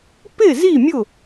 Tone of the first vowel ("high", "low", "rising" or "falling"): falling